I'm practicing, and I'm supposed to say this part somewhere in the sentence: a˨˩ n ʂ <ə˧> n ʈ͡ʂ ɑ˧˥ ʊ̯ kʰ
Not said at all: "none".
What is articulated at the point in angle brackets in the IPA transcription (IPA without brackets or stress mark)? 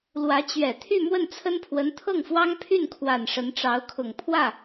ə˧˥